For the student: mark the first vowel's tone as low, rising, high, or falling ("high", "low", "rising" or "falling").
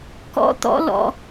high